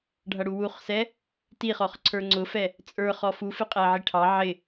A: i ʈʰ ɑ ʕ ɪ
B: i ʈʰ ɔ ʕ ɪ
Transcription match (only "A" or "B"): A